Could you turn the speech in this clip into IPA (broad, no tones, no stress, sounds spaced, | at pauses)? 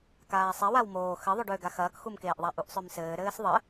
k aː sˤ e w a w m oː x ɘ ðˤ ø ɖ ø ɡ a x ɐː k x u m k eː ʔ ðˤ a ʔ u ʔ sˤ ø m s ɘː ɾ ɘː s ðˤ ɘ